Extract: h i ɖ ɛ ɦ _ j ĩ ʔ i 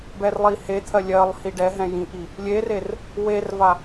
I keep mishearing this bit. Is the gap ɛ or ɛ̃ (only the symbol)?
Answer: ɛ̃